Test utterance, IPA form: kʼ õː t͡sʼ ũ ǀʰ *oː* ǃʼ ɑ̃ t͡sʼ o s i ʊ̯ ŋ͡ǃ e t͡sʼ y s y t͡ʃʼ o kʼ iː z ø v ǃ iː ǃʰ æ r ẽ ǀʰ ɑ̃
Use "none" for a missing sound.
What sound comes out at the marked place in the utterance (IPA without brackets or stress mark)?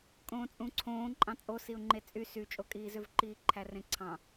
õː